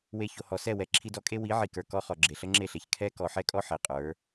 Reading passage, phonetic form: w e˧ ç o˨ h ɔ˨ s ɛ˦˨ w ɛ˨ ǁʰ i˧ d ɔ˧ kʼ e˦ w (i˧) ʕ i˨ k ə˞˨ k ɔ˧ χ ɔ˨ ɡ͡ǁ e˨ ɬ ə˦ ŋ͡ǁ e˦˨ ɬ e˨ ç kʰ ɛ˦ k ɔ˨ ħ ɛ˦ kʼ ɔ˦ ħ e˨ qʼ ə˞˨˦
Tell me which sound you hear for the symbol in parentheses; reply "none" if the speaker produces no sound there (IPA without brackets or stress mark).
i˨˦